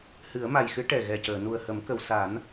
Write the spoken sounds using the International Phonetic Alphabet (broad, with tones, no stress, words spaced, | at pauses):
hɨ˨˩˦ə̯ma˨˩jxɨ˧˥ ʈɛ˨˩ɣɛ˨˩cəː˨˩˨ nu˨˩ə̯hə˨˩˦mkə˨˩˨wsa˨˩˦n